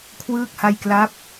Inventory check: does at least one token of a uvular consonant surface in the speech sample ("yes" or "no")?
no